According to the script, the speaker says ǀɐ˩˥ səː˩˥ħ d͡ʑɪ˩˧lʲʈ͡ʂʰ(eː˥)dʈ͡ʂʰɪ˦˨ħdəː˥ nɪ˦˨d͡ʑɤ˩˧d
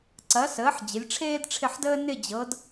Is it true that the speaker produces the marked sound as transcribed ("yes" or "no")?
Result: yes